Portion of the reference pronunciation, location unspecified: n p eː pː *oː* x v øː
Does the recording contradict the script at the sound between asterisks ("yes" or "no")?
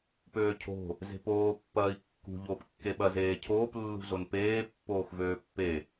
no